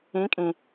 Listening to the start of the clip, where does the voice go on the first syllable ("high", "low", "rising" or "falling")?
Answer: rising